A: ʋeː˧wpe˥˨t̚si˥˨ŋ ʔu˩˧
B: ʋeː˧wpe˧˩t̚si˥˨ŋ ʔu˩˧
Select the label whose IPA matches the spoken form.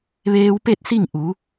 A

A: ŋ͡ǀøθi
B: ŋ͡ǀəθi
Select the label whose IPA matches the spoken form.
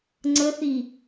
B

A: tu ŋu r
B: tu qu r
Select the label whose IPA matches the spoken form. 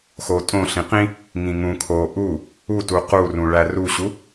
B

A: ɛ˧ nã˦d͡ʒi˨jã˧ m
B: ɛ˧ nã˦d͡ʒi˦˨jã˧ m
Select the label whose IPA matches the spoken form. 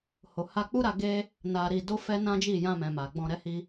B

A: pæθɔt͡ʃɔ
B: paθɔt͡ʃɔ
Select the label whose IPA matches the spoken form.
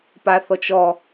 B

